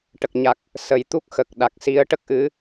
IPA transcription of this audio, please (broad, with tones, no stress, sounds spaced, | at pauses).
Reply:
ʈ ə˨˩ k̚ ɲ a˨˩ k̚ | s ə˨˩ j t̪ u˦˥ k̚ x ə˨˩ k̚ ɗ a˨˩ k̚ s i˧˥ ə̯ ʈ ə˦˥ k̚ ʔ ɨ˧˥